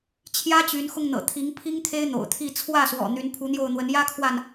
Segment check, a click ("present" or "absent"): absent